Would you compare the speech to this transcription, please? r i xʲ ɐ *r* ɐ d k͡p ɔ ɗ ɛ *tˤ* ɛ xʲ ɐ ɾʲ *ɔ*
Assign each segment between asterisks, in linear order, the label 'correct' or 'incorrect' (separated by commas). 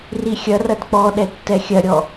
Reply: correct, incorrect, correct